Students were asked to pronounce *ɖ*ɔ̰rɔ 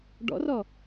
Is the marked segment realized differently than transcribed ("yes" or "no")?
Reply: no